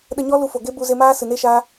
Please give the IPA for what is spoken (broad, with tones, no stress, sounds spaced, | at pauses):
ɗ ə˧ ɲ ɔ˦ l u˧ f o˨ ɡ e˦ b u˧ z e˧ m aː˦ s ɨ˨ n e˦ ʃ aː˦